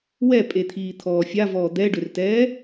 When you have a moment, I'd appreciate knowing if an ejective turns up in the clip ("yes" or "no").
yes